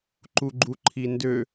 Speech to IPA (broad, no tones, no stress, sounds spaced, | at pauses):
ǃ u ɡ͡ǃ u ǃʰ i n d ø